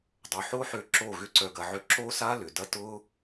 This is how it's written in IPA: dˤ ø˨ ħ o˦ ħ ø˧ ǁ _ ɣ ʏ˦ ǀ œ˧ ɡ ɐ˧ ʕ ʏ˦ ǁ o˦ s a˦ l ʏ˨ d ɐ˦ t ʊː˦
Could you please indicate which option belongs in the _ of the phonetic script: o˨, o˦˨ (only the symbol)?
o˦˨